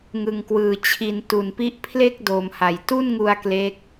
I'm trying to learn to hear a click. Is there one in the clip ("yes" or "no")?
no